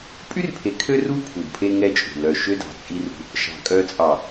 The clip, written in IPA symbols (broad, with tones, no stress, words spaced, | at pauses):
pʼy˦rpʰe˨kʰø˦ ru˦ pʰu˨dpʰe˦ŋɛ˦t͡ʃʼṳ˨ lœ˨ʃø˦ dɑ̤˨t͡sʼi˦rṳ˦ | ʃɑ̤˨ kʼœ˨t͡sʼɑ˨